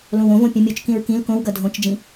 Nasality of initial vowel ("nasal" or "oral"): nasal